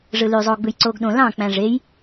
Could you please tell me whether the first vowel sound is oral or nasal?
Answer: oral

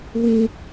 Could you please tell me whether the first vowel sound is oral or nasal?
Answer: nasal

